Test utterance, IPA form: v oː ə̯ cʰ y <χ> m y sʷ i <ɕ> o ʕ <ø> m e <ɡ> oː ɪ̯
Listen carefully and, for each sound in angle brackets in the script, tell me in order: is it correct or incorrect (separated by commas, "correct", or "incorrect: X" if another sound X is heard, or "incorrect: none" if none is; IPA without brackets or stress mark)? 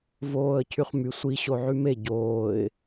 correct, correct, incorrect: y, incorrect: ɟ